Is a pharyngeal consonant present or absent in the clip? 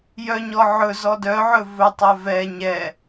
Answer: present